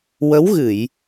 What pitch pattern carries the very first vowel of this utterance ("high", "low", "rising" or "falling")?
rising